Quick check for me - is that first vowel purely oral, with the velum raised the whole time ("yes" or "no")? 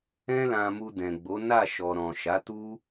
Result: no